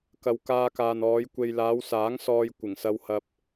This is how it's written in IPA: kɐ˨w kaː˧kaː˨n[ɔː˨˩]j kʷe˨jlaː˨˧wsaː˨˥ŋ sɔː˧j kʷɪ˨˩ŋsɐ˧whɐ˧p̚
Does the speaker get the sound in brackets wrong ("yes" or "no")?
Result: yes